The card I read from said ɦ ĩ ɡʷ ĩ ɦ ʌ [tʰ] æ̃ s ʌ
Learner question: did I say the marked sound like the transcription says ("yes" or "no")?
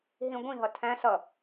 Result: yes